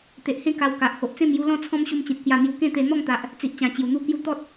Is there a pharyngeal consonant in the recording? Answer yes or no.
no